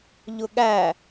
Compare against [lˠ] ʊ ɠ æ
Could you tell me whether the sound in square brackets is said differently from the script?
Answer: yes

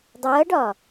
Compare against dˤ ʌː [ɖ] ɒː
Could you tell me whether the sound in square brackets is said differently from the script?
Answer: no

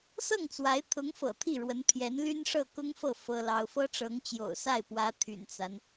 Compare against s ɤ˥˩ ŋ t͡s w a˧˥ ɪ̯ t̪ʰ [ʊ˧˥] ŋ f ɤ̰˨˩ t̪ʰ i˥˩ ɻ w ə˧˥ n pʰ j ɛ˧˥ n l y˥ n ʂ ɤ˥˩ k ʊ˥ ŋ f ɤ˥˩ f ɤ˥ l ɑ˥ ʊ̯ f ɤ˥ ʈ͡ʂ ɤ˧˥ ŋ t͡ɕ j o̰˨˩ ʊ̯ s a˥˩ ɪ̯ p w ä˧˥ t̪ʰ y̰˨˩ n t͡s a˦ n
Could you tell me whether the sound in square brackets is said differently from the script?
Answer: no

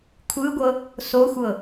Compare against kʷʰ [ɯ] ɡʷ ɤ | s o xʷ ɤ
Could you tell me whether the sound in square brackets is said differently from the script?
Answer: no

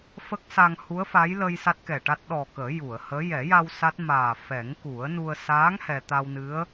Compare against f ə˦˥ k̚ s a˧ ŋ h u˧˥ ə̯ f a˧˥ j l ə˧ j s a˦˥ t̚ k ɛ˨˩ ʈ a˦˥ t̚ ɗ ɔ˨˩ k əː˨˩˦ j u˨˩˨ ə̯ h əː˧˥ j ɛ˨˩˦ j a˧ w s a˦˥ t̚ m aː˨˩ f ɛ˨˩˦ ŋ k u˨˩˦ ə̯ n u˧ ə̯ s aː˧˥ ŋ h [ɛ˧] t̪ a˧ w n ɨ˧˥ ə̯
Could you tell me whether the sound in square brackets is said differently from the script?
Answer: no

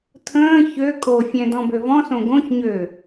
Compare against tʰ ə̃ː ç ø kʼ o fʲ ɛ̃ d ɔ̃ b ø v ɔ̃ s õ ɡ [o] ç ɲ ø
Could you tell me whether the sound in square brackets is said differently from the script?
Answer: yes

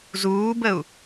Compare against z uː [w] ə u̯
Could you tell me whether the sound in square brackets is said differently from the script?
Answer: yes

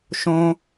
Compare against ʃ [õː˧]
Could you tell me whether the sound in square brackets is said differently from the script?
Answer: no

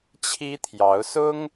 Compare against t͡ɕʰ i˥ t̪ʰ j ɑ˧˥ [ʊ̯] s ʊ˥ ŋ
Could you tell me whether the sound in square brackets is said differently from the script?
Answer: no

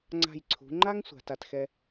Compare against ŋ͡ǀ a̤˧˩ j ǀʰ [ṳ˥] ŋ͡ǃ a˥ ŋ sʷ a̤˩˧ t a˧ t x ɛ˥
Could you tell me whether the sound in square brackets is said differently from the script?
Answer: yes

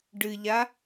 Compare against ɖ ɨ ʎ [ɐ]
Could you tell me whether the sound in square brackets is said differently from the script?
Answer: yes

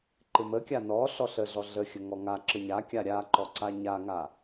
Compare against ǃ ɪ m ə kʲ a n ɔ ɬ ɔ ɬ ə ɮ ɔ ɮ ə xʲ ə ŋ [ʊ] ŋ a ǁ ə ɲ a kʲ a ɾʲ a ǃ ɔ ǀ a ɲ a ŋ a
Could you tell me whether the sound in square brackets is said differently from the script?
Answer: yes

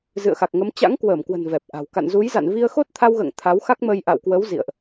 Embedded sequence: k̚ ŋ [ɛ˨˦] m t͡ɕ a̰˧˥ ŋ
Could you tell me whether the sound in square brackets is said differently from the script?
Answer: yes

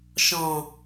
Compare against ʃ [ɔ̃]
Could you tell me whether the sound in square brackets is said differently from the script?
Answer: no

